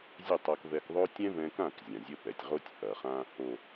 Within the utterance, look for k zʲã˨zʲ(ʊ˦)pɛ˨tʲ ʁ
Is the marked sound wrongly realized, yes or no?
yes